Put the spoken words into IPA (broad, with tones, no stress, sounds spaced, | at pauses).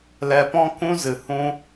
l ɛ˨ p ɔ̃˧ k ũ˦ z ɨ˨ h ũ˦